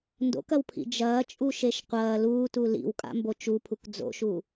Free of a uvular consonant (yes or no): no